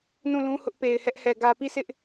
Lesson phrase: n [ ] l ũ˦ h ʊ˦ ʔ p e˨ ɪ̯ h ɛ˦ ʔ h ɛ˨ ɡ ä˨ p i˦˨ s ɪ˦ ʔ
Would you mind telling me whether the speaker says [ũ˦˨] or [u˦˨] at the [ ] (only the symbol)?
ũ˦˨